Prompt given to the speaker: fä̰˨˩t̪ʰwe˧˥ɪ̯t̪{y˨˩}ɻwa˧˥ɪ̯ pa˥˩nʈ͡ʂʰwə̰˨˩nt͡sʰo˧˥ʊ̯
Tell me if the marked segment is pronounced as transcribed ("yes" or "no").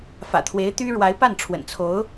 no